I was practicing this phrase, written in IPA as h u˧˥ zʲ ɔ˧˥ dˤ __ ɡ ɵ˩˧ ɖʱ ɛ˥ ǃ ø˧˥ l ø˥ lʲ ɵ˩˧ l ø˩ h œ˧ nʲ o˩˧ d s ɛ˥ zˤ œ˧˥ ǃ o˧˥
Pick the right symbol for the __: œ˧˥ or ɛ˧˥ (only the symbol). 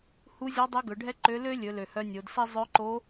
ɛ˧˥